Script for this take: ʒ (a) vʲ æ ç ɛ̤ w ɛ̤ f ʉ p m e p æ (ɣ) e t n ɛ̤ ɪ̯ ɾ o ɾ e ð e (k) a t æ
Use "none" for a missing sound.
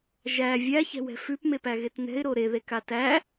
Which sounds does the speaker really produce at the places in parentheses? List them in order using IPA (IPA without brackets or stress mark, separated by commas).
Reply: æ, ɣ, k